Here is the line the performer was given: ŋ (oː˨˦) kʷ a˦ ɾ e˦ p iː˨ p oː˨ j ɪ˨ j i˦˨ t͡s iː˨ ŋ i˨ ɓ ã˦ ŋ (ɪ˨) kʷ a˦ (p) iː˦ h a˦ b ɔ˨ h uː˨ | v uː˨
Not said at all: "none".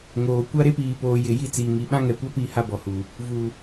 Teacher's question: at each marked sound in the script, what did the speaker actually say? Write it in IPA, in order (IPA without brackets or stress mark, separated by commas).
oː˨, ɛ˨, p